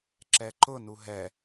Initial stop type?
click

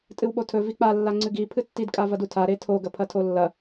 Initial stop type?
ejective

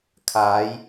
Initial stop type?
aspirated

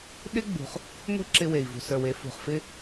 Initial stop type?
implosive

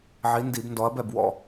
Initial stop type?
plain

